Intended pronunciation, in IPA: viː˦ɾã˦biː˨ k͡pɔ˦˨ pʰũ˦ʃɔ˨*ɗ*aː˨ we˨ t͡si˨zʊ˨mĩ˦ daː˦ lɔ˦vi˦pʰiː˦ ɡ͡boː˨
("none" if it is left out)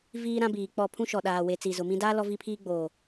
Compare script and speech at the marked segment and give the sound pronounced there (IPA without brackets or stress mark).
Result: ɗ